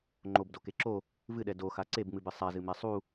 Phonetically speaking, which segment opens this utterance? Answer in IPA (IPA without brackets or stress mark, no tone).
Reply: ŋ͡ǃ